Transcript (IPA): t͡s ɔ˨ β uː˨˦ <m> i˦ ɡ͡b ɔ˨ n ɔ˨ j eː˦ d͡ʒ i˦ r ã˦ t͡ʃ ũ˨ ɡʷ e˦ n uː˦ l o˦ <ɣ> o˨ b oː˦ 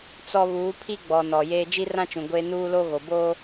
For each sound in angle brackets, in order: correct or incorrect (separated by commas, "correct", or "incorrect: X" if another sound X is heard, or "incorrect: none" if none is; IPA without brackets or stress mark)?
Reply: incorrect: pʰ, correct